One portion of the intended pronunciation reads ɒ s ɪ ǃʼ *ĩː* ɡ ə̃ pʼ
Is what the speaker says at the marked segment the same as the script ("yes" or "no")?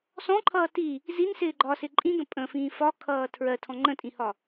no